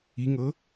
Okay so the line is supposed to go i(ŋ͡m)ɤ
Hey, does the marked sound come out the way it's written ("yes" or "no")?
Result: no